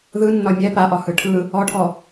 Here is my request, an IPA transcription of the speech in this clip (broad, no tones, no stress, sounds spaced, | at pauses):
ð ɯ nː ɒ mʲ ɛ p a ʔ ɒ h ɯ ʈʰ ɯ | ɔ ʈʰ ɔ